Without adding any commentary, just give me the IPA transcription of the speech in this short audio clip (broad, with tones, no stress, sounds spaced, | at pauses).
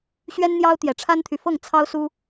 ɕ ɥ ɛ˦ n n̪ j ɑ˦ ʊ̯ t̪ j ɛ˨˦ ʈ͡ʂʰ a˦ n t̪ʰ y˨ f ɤ˥˨ ŋ t͡sʰ ɑ˦ ʊ̯ s u˦